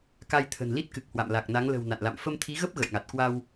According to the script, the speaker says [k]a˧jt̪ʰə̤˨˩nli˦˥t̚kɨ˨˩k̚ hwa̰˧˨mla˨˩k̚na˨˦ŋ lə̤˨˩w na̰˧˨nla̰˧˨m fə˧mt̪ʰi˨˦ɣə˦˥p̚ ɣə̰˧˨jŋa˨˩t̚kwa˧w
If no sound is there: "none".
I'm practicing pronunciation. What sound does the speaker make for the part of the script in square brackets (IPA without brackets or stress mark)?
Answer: k